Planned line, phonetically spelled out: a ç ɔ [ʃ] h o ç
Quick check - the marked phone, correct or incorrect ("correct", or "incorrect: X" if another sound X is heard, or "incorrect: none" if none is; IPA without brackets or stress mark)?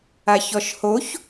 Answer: correct